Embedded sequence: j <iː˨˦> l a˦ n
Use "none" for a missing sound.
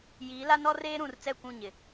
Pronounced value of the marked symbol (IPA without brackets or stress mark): iː˨˦